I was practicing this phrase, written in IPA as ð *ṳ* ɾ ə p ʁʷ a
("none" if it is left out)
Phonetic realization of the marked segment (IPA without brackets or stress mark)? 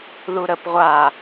u